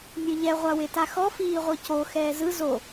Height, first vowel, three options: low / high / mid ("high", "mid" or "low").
mid